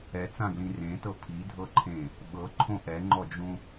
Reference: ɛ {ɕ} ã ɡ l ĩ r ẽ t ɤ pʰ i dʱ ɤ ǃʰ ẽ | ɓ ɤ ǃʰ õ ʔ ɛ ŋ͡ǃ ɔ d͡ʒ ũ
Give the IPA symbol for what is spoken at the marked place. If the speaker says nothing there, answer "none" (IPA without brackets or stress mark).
t͡s